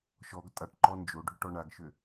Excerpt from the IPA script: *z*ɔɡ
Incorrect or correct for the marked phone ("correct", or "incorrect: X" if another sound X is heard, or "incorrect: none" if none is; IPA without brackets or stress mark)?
incorrect: ʃ